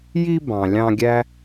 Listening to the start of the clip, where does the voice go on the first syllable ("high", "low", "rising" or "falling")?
high